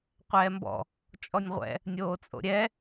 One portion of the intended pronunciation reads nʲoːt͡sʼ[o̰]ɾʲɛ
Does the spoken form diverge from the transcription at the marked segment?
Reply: no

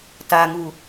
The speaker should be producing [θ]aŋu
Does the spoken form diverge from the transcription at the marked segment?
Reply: yes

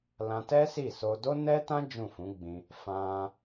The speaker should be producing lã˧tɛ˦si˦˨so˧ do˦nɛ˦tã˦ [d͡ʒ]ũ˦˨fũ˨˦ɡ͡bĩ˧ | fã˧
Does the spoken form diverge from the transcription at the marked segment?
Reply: no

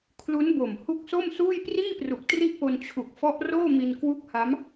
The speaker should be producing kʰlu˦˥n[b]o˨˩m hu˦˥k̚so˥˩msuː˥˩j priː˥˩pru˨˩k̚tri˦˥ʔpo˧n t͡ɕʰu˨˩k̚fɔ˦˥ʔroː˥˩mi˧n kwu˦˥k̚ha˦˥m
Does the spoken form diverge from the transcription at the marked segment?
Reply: no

